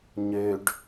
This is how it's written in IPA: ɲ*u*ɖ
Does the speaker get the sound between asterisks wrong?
yes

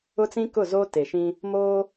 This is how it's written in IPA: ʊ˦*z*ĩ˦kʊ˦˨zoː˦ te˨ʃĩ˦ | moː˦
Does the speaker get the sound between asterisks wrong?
yes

